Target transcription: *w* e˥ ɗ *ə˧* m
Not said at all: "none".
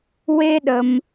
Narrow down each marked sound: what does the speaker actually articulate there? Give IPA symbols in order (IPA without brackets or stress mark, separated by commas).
w, ə˩